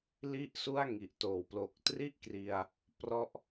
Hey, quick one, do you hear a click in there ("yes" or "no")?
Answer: no